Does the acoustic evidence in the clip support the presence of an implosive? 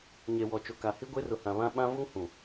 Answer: yes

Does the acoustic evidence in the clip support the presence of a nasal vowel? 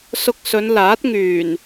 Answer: no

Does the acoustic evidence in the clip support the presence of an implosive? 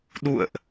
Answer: yes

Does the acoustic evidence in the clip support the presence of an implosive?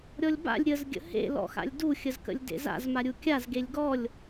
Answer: no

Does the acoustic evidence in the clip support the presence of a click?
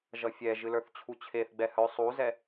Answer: no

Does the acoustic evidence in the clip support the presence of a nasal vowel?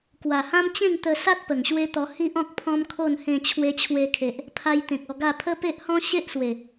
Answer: yes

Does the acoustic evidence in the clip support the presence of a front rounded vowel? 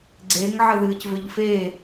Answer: yes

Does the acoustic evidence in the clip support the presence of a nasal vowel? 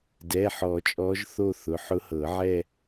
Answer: no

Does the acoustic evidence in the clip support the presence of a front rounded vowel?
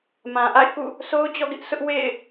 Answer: no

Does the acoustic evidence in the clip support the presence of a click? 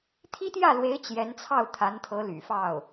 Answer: no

